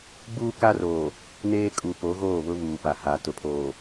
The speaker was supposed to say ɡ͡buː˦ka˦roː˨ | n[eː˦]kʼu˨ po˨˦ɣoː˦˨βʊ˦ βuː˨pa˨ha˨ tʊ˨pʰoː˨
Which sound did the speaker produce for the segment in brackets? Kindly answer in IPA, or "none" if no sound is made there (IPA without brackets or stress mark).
eː˦